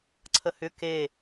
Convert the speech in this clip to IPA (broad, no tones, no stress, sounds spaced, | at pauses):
ǀʰ ə h ʏ k e